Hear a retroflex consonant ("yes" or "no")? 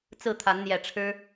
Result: yes